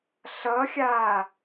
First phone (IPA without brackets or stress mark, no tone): ɬ